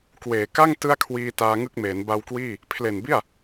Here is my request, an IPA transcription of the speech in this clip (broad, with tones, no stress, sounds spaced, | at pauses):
k w eː˩˦ k a˥˩ ŋ t ɯ˥˩ a̯ kʰ w iː˧ t aː˧ ŋ ɯ˥˩ k̚ m eː˩˦ n b a˧ w k w iː˥˩ | pʰ l e˨˩ n b i˥˩ a̯